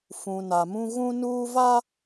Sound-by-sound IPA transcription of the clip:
f ũ˨ n a˨ m ũ˦ ɣ ũ˦ n uː˦ v a˦

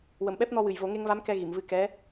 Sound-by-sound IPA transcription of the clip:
w ə˨˩ m ɓ ɛ˦˥ p̚ n ɔ˧ w ɨ˨˩ j v o˨˩˦ ŋ e˧ ŋ v a˧˥ m k ɛ˧ ɣ i˨˩˨ m v ɨ˧ k ɛ˧˥

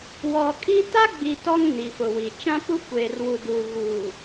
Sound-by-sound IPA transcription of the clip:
w ɔ˨ kʼ i˦ t a˦ ɡ͡b i˨ t ɔ˦ ŋ n i˨ f ʊ˨ w i˨ t͡ʃ ã˦ p u˦ kʷ eː˨ r w u˨ d u˨ ɣ uː˨

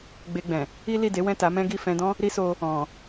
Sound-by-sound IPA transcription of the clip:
ɡ͡b e˧ ɡ͡b ɛ̃˨ | i˦ l i˦˨ d e˨˦ w ɛ̃˦˨ t a˨˦ m ɛ̃˦ ɡ i˦˨ f ɛ̃˧ d ɔ̃˦ | ɾ i˦ s o˧ | ɔ̃˨

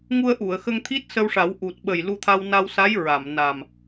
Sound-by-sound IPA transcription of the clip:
ŋ u˧ ə̯ ʔ u˨˩˨ ə̯ x ə˧ ŋ t̪ʰ i˦˥ t̚ s ə˧ w ʂ a˨˩˦ w ʔ u˨˩ t̚ ɓ ə˨˩ j l u˧ t̪ʰ a˧ w n a˧ w s a˧˥ j ɹ a˨˩˨ m n a˨˩ m

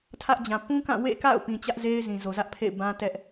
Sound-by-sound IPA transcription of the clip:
tʰ ä˦ ʔ d͡ʑ ã˨ p ũ˦ k ã˦˨ w ḛ˦˨ k a̰˦˨ ʊ̯ p ĩ˨ t͡ɕ ä˦ ʔ z e˦ ɪ̯ z ĩ˨ z o˨ z ä˦ ʔ pʰ ḛ˦˨ ɪ̯ b ã˦ t ɛ˦ ʔ

